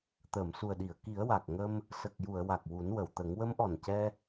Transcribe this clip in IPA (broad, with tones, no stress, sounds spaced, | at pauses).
t̪ əː˨˩˨ m s u˨˩ ə̯ ɗ i˨˩˨ ə̯ k i˨˩˦ ə̯ w a˨˩ k̚ ŋ ə˧ m | s ə˨˩ k̚ j u˨˩˨ ə̯ w a˨˩ k̚ w u˨˩˦ n w ə˨˩˨ w t̪ ə˨˩˦ ŋ w ə˧˥ m ʔ ɔ˨˩ n c ɛ˧